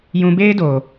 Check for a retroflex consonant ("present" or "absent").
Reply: absent